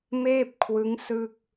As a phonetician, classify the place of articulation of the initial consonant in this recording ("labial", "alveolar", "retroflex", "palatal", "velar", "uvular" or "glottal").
labial